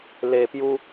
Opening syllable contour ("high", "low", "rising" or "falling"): low